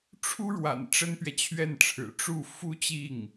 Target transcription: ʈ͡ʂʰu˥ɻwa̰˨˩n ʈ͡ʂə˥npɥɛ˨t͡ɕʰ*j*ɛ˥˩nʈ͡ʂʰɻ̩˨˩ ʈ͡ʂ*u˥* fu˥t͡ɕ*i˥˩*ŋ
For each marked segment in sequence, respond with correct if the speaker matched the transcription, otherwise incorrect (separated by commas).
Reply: incorrect, incorrect, correct